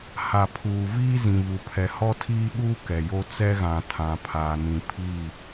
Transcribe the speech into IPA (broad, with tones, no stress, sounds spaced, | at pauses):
h a˨ pʰ uː˨ v iː˦ z ĩ˨ v u˨ pʰ ɛ˨ h ɔ˦ tʰ iː˦ ɓ uː˦ k ɛ˨ j o˦ t͡s ɛ˦ ɣ ã˨ tʰ ã˨ pʰ aː˨ n ĩ˨ pʰ i˦˨